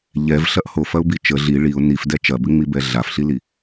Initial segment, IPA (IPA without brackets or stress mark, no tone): ʎ